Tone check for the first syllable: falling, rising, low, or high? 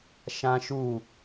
high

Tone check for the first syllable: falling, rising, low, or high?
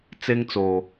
high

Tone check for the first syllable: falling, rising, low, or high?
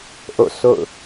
falling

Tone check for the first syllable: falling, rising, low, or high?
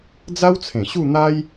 high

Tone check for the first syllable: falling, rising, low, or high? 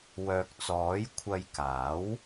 low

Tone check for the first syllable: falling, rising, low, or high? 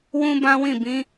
high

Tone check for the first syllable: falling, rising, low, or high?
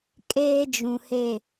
high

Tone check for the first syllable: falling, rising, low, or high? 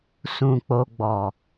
low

